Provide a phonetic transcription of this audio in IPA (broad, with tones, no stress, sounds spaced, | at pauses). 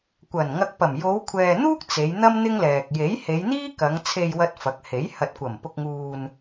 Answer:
kʷ ɐ˨˩ n ŋ ɐ˨ k̚ p ɐ˨˩ m j o˨˧ w kʷʰ ɛː˨ n̪ uː˥ k̚ t͡s e˨˧ j n̪ ɐ˥ m n̪ ɪ˥ ŋ l ɛː˨ k̚ j e˨˥ j h e˨˧ j n̪ iː˥ k ɐ˨˧ ŋ t͡sʰ e˧ j w ɐ˧ t̚ f ɐ˨˥ k̚ h e˨˥ j h ɐ˨ t̚ kʷ ɐ˨˩ m p ʊ˧ k̚ ŋ uː˧ n